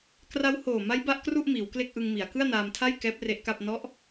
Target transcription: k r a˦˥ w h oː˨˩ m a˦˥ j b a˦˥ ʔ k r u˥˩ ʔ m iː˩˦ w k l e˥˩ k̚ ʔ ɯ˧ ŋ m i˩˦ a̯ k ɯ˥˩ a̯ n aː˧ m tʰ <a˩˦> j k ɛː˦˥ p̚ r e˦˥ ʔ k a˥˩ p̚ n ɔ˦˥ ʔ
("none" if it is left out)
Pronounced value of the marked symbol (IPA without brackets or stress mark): a˥˩